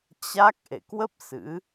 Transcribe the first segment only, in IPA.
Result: t͡ɕ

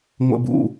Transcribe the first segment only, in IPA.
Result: ŋʷ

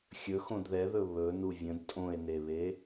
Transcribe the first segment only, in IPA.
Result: xʲ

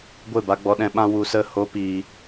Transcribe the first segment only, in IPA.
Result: ɡʷ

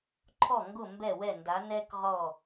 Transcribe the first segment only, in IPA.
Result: ǃʰ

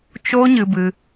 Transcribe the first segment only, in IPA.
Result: t͡ʃ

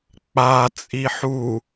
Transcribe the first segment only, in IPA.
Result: k͡p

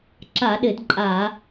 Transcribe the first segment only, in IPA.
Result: ǁ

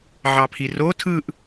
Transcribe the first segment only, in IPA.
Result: ʕ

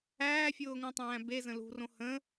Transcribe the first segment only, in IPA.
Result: æː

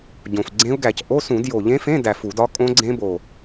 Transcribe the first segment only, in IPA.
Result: ɟ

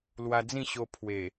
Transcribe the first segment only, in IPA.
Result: l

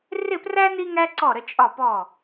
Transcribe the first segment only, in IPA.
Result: r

